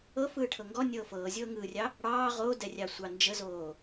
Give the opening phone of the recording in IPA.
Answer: ɤ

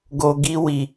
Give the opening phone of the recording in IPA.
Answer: ɡ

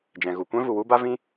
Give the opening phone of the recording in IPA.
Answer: d͡ʒ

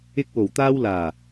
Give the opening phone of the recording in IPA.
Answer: ɪ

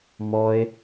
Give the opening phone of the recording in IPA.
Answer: m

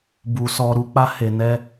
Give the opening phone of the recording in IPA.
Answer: b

